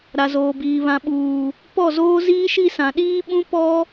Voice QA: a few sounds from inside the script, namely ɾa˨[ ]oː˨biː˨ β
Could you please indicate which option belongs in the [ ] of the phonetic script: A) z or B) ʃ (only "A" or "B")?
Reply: A